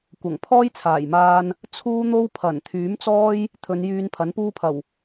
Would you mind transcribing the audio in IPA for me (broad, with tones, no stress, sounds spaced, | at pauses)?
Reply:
kʷ ɐ˨˩ ŋ pʰ ɔː˥ j t͡sʰ aː˨˩ j m aː˧ n | t͡sʰ uː˥ n̪ o˥ w pʰ ɐ˨˩ n t̪ʰ yː˨˥ m t͡s ɔː˥ j | t̪ʰ ɵ˨˧ n j yː˧ n pʰ ɐ˨˥ n p uː˥ pʰ ɐ˨˩ w